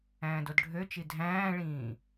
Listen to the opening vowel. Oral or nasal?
nasal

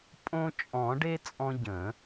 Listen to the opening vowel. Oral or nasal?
nasal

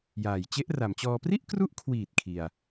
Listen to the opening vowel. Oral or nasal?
oral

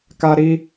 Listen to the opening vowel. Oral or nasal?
oral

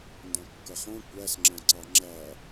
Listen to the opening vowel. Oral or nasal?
nasal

